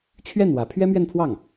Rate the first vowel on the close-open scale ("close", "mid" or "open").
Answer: mid